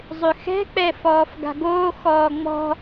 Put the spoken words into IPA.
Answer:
zˤʏxɛ̤k͡pɛ fɔːfɡa̤ɡoːxɔː ŋ͡mɔ̤

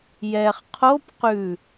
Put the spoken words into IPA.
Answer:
jɛχ qʰop qʉ

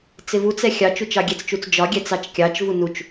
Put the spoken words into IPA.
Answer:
t͡sɪvut͡sɛ xʲɑt͡ʃut͡ʃ ɑɡʲɛt͡st͡ʃut͡s d͡ʒɒɡʲɛ t͡sɑt͡ʃkʲɑt͡ʃvu nut͡ʃ

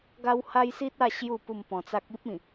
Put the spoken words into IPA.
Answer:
ɡa˦wha˦jsi˦t̚a˥˧ ɕju˥˧ pu˥˧mpɔ̃˧t͡sa˦k̚ i˦p̚ĩ˨˩

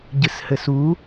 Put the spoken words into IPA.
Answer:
ɟɨshɘsu

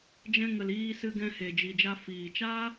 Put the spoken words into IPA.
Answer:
d͡ʒɛ̃˧ŋə˨l iː˧sɨ˧ɡɛ̃˧ he˨d͡ʒi˨d͡ʒa˧ fiː˨t͡ʃa˦

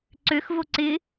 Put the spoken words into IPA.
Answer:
ǀøxvo ǀɪ

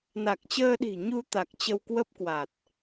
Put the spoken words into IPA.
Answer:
na˨˩k̚t͡ɕəː˧ɗi̤˨˩ ɲu˧ t̪a˨˩k̚ t͡ɕə˧wkwə˦˥p̚ kwa˨˩t̚

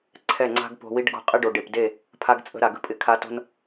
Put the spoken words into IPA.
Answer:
ǀʰɛ˦˨ŋ͡ǀa̤˦ɡpo̤˧wi˦ɖ ɡo̤˧qʼɪ˦ ɖo˨ ɖe˨pde˦˨ | pʰa˧ɡt͡sʼə̤˧ ɾa˨ɡə̤˧pʼɪ˧ kʰa˧ to̤˧n

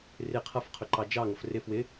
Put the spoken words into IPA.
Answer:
rɪ qʰʌfqʰʊǃɑ d͡ʒɑŋʌf rɪ fwɪ

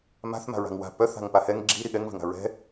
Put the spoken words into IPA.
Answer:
ma̤θ ma̤ɹa̤ŋwa̤ pœθ a̤ŋpahɛŋ ɡ͡ǁi ɾiɠɛŋ vɛ̤ŋa̤ɹɛ̤

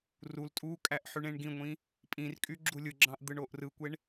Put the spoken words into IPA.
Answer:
rul tʼukʼæʔ ħyɳẽɳɡĩŋʷĩ | pʼĩrkʼy ɡ͡ǁulʲɯɡ͡ǁɑ̃ʔ d̪ɯɳoʔrɯkʷeɳ

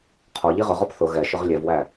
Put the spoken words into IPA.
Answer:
qʰɔ ʎiʁʊʁɔp θʊ ɣɛʃʊʁ lʲɛvwæ

